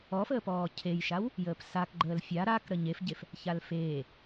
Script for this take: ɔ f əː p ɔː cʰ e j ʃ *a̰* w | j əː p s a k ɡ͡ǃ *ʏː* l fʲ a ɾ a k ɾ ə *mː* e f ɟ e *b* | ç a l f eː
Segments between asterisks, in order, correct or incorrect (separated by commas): incorrect, incorrect, incorrect, incorrect